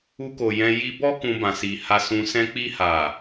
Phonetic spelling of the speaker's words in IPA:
u˧ k o˨ j ɛ̃˧ j i˧ b ɔ˦ k ũ˧ b ã˨ s i˨ h a˧ s ũ˧ s ɛ̃˧ k͡p i˧ h a˨

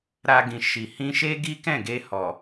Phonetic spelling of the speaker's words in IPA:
ɾ a˧ ɡ ĩ˨ ʃ i˨ h ĩ˧ ʃ e˦ ɡ i˦ k ɛ̃˦˨ ɡ e˧ h ɔ˨

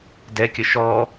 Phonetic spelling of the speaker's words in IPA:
d ɛ kʲ ə ʃ ɔ

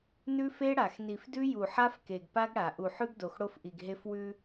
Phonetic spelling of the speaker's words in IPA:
n ʉ˦ f e˦ ɽ a˨ x n i˨ f d ʉ˦ j u˨ ħ a˦ f k e˨ ɡ p a˦ ɡ ɽ a˨ ʔ u˨ ħ ʉ˦ ɡ d o˨ x ɽ o˦ f ʔ i˨ ɡ ɦ e˦ f w ʉ˦

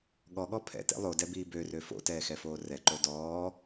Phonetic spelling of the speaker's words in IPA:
ɠ ɔ ɠ ɔ pʰ ɛ̰ t ɛ̰ lˠ o d ɛ b iː b ø r ø f o̰ t ɛː x ɛ f oː r ɛ ǃ o d ɔː

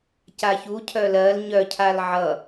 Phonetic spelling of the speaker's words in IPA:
c a ç u cʰ œ l ɜ l ɲ œ cʰ a l ʕ ʌ

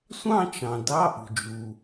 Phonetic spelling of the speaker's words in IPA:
sʷ ɑ̃˥˧ t͡ʃ ɑ̃˩ d ɑ˧˥˧ ʔ ṳ˩ d͡ʒ u˩

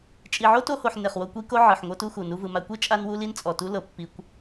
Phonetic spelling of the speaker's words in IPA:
t͡ʃʼ i˨ ʕ o˦ t o˧ h o˨ ħ n e˨ χ w o˧ kʷ i˦ k o˦ ʕ ɯ˨ ħ ŋʷ ɤ˦ t u˦ x u˨ n u˧ v ɯ˨ m a˧ kʷ e˦ t͡ʃʼ a˧ n w u˧ l i˦ n t͡sʼ ɔ˨ t u˦ l ɤ˨ pː i˧ kʷ

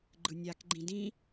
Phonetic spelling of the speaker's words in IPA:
ɡ͡ǃ ɯ nʲ a k ɡ͡ǃ ĩ d ĩ

